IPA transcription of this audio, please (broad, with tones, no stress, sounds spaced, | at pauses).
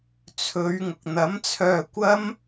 t͡sʰ ɵ˨˧ ɥ ŋ ʊ˨ k̚ n̪ ɐ˨˥ m t͡sʰ œː˧ kʷ ɐ˥ m